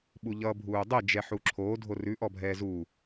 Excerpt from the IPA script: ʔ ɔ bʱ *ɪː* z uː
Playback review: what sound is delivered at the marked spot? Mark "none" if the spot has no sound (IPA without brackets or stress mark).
ɛː